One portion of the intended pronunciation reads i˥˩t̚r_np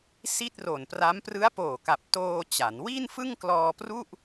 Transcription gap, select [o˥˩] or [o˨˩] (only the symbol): o˨˩